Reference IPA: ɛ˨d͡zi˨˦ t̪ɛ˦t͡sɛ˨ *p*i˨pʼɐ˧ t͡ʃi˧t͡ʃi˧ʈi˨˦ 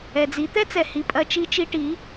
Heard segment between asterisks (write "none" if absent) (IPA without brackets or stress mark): h